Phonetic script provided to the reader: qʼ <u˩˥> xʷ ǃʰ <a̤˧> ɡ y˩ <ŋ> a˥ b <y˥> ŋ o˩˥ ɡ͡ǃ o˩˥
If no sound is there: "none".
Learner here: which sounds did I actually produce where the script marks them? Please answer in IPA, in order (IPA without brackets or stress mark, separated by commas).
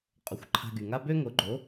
o˩˥, a̤˧, ŋ, ø˥